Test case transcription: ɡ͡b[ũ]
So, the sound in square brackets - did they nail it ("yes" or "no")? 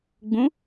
yes